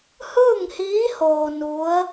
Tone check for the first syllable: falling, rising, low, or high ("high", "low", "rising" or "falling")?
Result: falling